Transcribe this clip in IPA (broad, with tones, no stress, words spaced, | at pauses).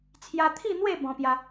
t͡sʰja˧t̪ʰi˥˧n̪we˥˧ bɔ̃˦pja˦